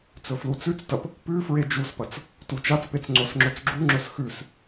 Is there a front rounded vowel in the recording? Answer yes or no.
no